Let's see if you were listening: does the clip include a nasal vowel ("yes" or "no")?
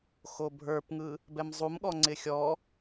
no